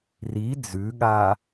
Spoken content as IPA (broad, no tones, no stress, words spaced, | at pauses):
ri d͡zʉɠa